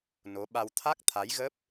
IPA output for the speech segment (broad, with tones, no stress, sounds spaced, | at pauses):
n o˨˦ ɓ a˧ w t̪ʰ a˦˥ k̚ t̪ʰ a˨˦ j ɣ ə˦˥ p̚